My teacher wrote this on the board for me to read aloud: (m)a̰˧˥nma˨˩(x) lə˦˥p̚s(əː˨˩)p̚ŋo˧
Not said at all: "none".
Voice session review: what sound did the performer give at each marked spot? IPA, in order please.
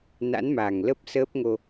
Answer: n, ŋ, əː˦˥

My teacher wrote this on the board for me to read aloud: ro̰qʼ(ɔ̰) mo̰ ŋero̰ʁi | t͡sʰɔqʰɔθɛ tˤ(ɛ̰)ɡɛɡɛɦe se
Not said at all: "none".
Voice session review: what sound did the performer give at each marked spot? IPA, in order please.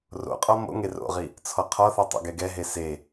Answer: ɔ, ɛ̰

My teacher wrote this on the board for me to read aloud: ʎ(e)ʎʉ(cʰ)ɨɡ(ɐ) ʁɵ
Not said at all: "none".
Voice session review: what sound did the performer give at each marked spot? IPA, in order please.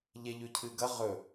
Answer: e, cʰ, ɐ

